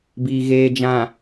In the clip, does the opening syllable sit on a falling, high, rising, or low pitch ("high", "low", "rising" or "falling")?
low